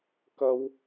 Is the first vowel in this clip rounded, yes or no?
no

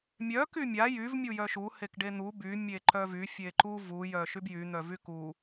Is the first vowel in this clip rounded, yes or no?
yes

